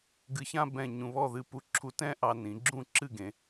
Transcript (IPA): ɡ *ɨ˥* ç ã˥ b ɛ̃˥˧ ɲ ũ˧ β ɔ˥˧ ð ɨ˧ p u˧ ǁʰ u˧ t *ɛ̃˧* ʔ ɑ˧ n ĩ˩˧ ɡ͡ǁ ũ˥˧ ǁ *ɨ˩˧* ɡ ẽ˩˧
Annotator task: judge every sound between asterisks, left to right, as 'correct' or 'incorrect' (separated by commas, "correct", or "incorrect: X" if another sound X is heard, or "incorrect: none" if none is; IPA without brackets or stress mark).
incorrect: ɨ˧, incorrect: ɛ̃˥, incorrect: ɨ˥˧